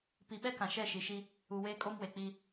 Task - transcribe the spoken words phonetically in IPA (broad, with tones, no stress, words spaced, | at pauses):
pi˨ɓɛ˦ kã˨ʃɛ˦˨ ʃi˨ʃi˦ | u˨weː˦ kʼo˦mwe˨k͡pi˦